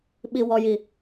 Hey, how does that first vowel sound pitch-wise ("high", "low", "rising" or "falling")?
low